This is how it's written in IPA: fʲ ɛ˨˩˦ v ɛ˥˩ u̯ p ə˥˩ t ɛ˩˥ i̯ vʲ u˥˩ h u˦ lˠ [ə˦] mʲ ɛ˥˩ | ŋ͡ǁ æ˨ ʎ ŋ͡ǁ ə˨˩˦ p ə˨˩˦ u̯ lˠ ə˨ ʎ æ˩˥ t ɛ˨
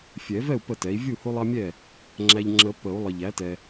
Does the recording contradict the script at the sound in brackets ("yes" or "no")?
yes